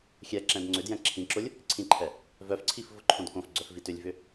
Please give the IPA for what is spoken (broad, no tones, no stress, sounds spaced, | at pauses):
xʲ ɛ ǁ ɛ̃ d ŋ͡ǀ ʏ d j ɛ̃ ǁʰ ĩ ǁ ʊ lʲ | ǀʰ ĩ ǃʰ ɛ | v œ f ǀʰ i f v ʊ ǃʰ õ d k õ f ɡ͡ǀ œ f v i t ʏ lʲ v ʏ